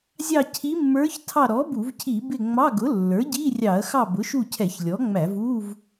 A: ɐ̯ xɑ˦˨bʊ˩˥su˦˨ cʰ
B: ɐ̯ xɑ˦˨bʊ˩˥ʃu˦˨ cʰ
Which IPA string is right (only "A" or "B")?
B